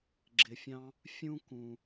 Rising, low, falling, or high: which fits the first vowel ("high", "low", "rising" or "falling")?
low